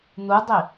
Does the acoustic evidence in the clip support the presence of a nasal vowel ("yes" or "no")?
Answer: no